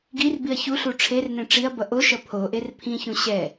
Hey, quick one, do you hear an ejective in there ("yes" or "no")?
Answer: no